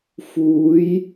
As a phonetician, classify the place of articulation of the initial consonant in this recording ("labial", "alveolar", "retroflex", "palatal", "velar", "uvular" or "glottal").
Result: labial